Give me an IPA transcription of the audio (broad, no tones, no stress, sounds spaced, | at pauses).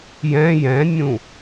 j ɛ̃ j ɛ̃ nʲ ũ